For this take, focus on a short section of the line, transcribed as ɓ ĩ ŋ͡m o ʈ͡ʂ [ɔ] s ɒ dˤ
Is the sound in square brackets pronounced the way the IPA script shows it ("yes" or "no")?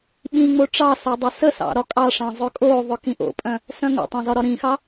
no